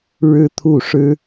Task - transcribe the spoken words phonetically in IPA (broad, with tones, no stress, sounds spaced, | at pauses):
ɻ ɻ̩˥ t̪ʰ u˥˩ ʂ ɻ̩˥